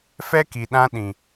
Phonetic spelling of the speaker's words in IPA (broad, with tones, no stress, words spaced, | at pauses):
fɛ˦ki˨ɗã˧ ɗĩ˨